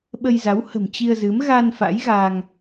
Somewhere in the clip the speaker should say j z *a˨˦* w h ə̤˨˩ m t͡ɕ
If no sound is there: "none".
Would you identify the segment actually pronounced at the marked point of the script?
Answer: a˨˦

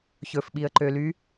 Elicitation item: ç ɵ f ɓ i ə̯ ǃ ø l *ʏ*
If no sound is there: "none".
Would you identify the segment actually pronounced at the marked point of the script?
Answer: y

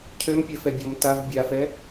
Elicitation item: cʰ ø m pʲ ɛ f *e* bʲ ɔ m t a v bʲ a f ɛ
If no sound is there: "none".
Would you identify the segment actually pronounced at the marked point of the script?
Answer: ɛ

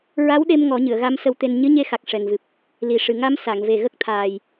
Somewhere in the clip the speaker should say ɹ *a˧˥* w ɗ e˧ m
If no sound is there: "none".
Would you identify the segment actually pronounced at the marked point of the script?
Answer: a˧˥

